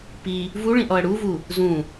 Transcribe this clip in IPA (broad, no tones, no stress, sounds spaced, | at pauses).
p i | v u ɭ ĩ ʔ ɔ ɐ̯ ɽ u v u | z ũ